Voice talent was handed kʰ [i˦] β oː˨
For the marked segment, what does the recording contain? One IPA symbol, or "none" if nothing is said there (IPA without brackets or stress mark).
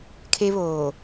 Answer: e˦